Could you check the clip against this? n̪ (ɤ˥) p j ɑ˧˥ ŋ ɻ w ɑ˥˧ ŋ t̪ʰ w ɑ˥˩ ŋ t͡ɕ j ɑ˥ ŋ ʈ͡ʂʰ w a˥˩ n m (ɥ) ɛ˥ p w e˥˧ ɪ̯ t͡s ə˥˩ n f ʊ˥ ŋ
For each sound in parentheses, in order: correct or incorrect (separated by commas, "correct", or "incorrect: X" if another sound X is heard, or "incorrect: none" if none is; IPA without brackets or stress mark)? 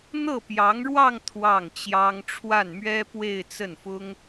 incorrect: ɤ˥˩, correct